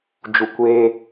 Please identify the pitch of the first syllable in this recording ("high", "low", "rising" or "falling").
low